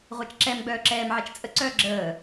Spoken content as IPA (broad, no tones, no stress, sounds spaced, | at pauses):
ʁʷ ɛ t͡ʃ ǁ ɛ m ɡ͡b œː ǁ ɛː m ʕ ɛ t͡ʃ t͡sʼ ə ǀ œː ɡ͡ǁ əː